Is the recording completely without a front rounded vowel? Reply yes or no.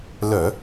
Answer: no